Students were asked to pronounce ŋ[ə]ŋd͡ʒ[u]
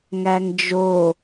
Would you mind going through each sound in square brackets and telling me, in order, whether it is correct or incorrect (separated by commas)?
incorrect, incorrect